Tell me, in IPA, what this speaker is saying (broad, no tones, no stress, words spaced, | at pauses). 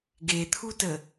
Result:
ɡet̪ʰutə